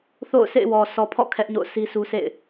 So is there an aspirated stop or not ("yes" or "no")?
yes